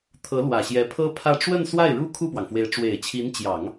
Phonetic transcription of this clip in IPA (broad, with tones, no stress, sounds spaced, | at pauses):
t̪ʰ ɤ˧˥ l w ä˨˩ ɕ j ɛ˧˥ pʰ ɤ˥ pʰ ä˥˧ ʈ͡ʂ w ə˥˧ n s w a˥˩ ɪ̯ ɻ u˥ kʰ u˥˩ p w ɑ˩ ŋ f w e˧˥ ɪ̯ ʈ͡ʂ w e˨˩ ɪ̯ t͡ɕʰ i˧˥ n t͡ɕ j ɑ˨˩˦ ŋ